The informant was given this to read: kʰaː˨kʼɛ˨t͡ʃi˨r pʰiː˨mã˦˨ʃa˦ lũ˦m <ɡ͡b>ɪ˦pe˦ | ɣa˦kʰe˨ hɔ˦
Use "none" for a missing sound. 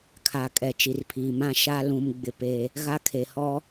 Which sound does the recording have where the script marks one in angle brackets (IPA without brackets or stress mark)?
ɡ͡b